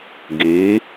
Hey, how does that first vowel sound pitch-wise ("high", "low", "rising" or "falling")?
rising